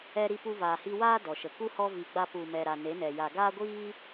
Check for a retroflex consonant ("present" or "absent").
absent